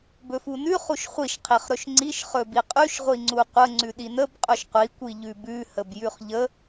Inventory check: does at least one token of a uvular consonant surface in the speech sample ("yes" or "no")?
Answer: yes